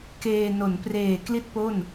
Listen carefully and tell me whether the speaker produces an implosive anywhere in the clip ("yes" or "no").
no